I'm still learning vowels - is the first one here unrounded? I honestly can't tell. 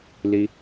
yes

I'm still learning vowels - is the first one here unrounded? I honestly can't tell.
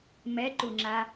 yes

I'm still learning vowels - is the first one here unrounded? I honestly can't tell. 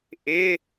yes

